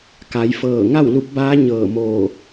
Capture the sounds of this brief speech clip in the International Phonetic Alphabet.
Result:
k a˩˧ j f ɤː˧˩ ŋ a˥˨ w l u˧˥ p̚ b aː˧˥ ɲ ɤː˧˩ m oː˧˩

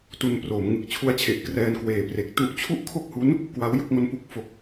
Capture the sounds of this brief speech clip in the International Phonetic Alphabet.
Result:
t u˧ n p r oː˩˦ m ŋ ɯ˨˩ k̚ t͡ɕʰ u˦˥ a̯ t͡ɕʰ e˨˩ ʔ k r ɛː˧ n k w eː˨˩ p r e˨˩ k̚ t u˦˥ ʔ t͡ɕʰ u˥˩ ʔ kʰ o˥˩ k̚ h u˦˥ n | k w a˦˥ w j u˥˩ k̚ ŋ o˦˥ n p u˨˩ k̚ f o˨˩ k̚

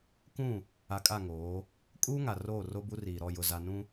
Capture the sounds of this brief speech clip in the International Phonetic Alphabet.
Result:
k ũ˦˨ | a˨ kʼ a˦˨ ŋ oː˨˦ | kʼ uː˦ ŋ a˨ r oː˦˨ r o˦ b u˦ r iː˨ ɾ ɔ˦˨ j ʊ˨ z a˨ n ũ˦

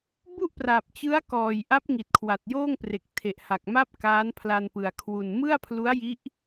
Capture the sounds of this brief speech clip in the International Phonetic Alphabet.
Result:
b u˥˩ ʔ p r aː˨˩ p̚ t͡ɕ ɯ˦˥ a̯ k ɔː˨˩ j ʔ a˦˥ p̚ ŋ i˨˩ t̚ kʰ w a˨˩ t̚ j oː˥˩ ŋ p r e˨˩ k̚ tʰ e˨˩ ʔ h a˨˩ k̚ m a˥˩ p̚ k aː˦˥ n pʰ l a˧ n p ɯ˨˩ a̯ kʰ w u˨˩ n m ɯ˥˩ a̯ pʰ l u˦˥ a̯ j i˦˥ ʔ

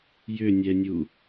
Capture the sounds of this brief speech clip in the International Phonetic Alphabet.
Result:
j ʏ nʲ ɛ nʲ u

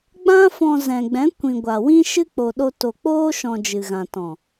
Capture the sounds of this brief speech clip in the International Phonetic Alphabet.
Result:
ɡ͡b ã˦ f ɔ̃˧ z ɛ̃˨ ɡ͡b ɛ̃˨˦ kʷ ĩ˨ ɡʷ a˨ w ĩ˦ ʃ ɨ˦ k͡p o˨ ɗ o˧ t o˨ k͡p oː˦ ʃ ɔ̃˧ d͡ʒ ɨ˨ ɣ ã˨ t ɔ̃˨

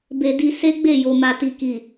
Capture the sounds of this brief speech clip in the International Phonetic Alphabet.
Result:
b e˧ d i˧ s e˦ ɡ͡b e˦˨ j o˨ m a˨ t i˨ k i˨

